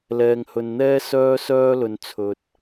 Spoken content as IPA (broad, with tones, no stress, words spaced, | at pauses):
lɛː˨ŋhɵ˨n n̪ɛː˥ sœː˥sœː˥lɵ˨nt͡sʰɵ˨t̚